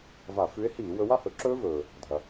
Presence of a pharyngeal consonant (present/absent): absent